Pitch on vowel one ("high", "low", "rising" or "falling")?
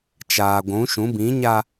low